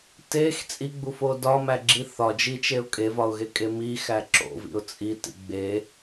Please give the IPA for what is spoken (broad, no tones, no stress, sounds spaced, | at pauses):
t e x t͡sʼ i ɡ͡b u f o d ɒ m æ ɡ͡ǁ i θ ɒ d͡ʒ i t͡ʃ e ʊ̯ kʼ e v ɒ ʊ̯ ɣ e kʼ e m i x æ ǁ o̰ v ḭ ʊ̯ t͡sʼ i t ḭ ɡ͡b e